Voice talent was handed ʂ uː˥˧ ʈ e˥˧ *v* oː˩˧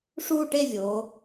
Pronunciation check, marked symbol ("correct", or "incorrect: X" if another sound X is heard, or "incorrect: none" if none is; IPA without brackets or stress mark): incorrect: vʲ